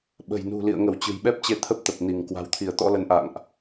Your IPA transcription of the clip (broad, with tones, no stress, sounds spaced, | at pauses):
ɓ ə̤˨˩ j n ṳ˨˩ l ḭ˧˨ ə̯ ŋ ə˧˩ w t͡ɕ ɨ̤˨˩ j ɓ ɛ˦˥ p̚ t͡ɕ e˧ t̪ʰ ə˦˥ p̚ t̪ ə˨˩ p̚ n i˧˩ ŋ k w a̤˨˩ w t̪ʰ i˧˩ ə̯ t̪ ɔ̰˧˥ l ə˨˦ n ʔ a̰˧˨ ŋ ʔ